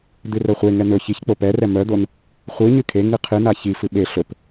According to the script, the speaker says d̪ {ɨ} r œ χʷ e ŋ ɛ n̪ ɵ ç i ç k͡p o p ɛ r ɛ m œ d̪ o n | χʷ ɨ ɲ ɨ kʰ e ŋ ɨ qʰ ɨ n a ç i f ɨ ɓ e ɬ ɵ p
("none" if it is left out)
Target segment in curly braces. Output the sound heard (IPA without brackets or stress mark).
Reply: ɨ